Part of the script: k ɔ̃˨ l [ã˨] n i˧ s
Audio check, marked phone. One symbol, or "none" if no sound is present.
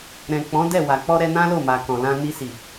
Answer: ã˧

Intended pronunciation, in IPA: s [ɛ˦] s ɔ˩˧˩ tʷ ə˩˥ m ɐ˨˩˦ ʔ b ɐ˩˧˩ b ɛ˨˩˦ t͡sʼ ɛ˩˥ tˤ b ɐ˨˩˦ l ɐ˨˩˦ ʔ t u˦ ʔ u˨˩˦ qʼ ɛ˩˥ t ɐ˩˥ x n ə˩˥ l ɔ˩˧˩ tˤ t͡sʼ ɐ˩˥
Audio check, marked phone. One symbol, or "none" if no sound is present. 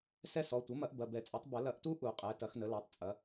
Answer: ɛ˦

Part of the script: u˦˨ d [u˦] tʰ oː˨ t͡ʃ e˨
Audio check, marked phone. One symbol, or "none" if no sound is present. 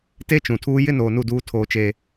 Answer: uː˦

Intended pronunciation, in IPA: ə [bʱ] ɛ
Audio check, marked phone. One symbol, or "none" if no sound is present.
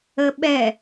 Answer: ɓ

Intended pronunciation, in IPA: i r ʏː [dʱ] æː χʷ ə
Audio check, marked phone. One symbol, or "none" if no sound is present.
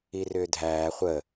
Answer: dʱ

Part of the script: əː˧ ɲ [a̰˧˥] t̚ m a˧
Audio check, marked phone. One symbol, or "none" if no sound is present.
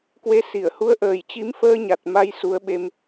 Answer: a˨˩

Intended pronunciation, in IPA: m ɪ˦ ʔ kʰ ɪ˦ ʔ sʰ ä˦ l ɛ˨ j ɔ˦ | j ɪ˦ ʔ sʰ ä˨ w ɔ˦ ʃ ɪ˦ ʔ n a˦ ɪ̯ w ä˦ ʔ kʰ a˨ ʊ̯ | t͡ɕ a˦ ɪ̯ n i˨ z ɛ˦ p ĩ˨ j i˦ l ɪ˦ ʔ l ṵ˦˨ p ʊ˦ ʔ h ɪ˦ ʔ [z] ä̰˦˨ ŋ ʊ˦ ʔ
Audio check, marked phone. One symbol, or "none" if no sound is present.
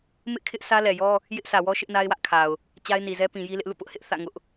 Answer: θ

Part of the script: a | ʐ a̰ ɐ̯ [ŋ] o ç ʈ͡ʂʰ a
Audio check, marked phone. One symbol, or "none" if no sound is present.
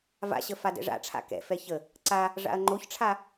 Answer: ŋ͡ǃ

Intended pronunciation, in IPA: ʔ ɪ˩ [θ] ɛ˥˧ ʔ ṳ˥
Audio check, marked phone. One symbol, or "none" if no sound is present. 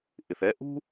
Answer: θ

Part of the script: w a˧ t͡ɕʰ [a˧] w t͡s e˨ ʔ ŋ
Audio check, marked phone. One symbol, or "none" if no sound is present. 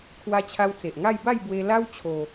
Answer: a˧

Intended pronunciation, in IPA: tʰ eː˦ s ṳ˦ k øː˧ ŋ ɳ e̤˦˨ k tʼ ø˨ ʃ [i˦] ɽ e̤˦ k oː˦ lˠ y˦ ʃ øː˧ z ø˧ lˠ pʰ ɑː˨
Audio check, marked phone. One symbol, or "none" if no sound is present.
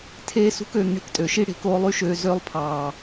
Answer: i˦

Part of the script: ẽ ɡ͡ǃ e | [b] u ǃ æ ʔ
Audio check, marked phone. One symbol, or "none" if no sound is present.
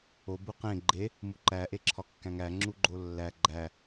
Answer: m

